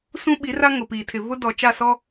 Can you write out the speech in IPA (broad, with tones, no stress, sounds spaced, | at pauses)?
s ũ˦ ɓ i˨˦ r a˦ ŋ ʊ˨ p iː˨ tʰ ɪ˨ v ʊ˦ d ɔ˨ t͡ʃ a˦˨ s ɔ˦